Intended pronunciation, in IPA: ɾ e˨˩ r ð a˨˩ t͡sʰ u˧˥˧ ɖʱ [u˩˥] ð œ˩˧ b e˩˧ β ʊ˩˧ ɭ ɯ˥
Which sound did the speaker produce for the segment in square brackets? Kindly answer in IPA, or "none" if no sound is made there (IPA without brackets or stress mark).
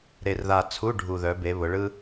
u˨˩